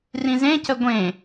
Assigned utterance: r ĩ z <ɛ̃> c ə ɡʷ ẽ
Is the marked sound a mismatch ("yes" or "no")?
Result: yes